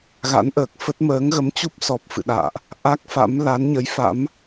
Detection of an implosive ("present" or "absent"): present